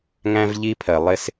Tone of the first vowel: high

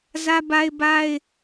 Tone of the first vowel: high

